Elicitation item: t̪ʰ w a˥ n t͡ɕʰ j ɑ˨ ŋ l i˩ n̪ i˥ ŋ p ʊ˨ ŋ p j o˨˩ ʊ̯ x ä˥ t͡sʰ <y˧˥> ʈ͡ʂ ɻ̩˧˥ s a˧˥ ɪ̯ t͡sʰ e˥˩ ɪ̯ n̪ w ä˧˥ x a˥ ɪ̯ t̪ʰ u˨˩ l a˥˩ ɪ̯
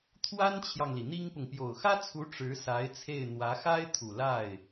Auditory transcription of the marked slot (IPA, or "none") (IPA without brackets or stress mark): u˧˥